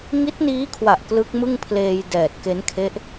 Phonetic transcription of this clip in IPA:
ŋ i˦˥ t̚ n iː˦˥ kʰ w a˨˩ ʔ k l ɯ˦˥ k̚ m ɯ˥˩ ŋ pʰ l eː˧ j d ɛː˨˩ t̚ k e˦˥ n kʰ e˦˥ ʔ

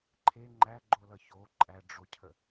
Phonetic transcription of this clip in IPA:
ǃʰ e ŋ͡ǃ æ ɡ͡ǃ o l ʌ ç o ǃʼ æ ɖ͡ʐ o cʰ ə

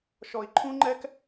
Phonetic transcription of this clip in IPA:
ʃ ɔ˨ i̯ ǃʰ ũ˦ ŋ͡ǃ ɛ˦ k

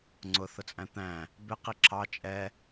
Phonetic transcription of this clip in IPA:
ŋ͡ǀ ʊ θ ʊ t͡sʼ æ̃ t̪ æ̃ | b ɪ q i ǁʰ ɑ t͡ʃʼ ɛ

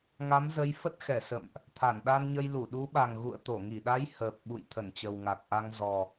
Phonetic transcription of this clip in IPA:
ŋ a˨˦ m z ə˨˦ j f ə˦˥ t̚ x ɛ˧˩ s ə̰˧˨ m ʔ | t̪ʰ a˧˩ n ɗ a˧ n ɲ ə˧ j l u˧˩ ɗ u˨˦ ɓ a˨˩ ŋ ɣ ṵ˧˨ ə̯ t̪ o˧˩ ŋ i˧˩ ɗ a˨˦ j h əː˨˩ p̚ ɓ ṵ˧˨ j t̪ʰ ə˧˩ n t͡ɕ ə˨˩ w ŋ a˨˩ k̚ ʔ a˧ ŋ z ɔ˨˩

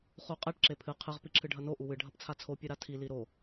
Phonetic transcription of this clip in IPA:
χ u qʼ ɛ ʈ ǁ e pʰ ɨ qʰ ɨ ʁ p i ǁʰ ɨ ɖʱ ɐ n o ʔ u w ɨ ɖʱ ɐ p t͡sʰ a t͡sʰ o pʲ ɨ ɾ a tʰ i l i ɾ o

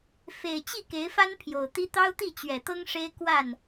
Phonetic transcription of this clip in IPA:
f e˨˩ ɪ̯ t͡ɕ i˥˨ k e˨˦ ɪ̯ f a˦ n pʰ j o˨˩ ʊ̯ t̪ i˦ t̪ ɑ˦ ʊ̯ t̪ i˥˨ t͡ɕ ɥ ɛ˨˩ t̪ ɤ˦ ŋ ʂ e˦ ɪ̯ k w a˥˨ n

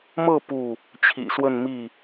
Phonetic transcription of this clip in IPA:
m ɤ˥˨ p u˥˨ | t͡ɕʰ ḭ˨˩ s w ə˥˨ n m i˥˨

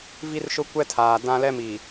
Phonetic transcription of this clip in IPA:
v i˦ r ʃ ʊ˦ kʷ ɛ˦ tʰ aː˨ d ã˦ l ɛ˦ m i˨

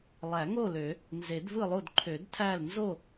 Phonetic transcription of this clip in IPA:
lˠ æ˨˩˦ ŋ o˥˨ l ø˨˩˦ | n z e˨˩˦ d v ɯ˥˨ lˠ o˥˨ d ǃʰ ø˨˩˦ d tʰ æ˥˨ l n z o˥˨

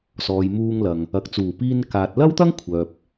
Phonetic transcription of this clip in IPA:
s ɔː˨ j m uː˧ ŋ l ɐ˨ ŋ | ɐ˨ k̚ t͡s uː˨˩ p iː˧ n k aː˨ t̚ l ɐ˥ w t̪ ɐ˥ ŋ kʷʰ œː˨ p̚

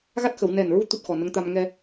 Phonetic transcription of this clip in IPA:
ɣ a˦˥ t̚ x ə˨˩˨ w n ɛ˨˩ n ɹ u˧˥ t̪ u˦˥ t̚ x ɔ˨˩ n ə˧˥ ŋ t̪ a˧ m ŋ ɛ˧

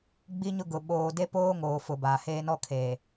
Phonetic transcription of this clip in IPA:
ɡ͡b i˦ ɲ ʊ˦ ɡ ʊ˨ ɓ oː˨ d e˦ p oː˦ ŋ oː˨ f ʊ˨ b aː˨ h eː˦ n ɔ˦ kʰ eː˨

